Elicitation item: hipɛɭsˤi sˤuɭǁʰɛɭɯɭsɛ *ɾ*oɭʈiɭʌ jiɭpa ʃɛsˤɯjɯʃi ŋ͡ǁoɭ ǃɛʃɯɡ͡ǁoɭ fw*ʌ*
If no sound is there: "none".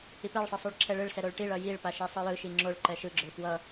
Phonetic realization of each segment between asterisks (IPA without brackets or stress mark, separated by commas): ɾ, ʌ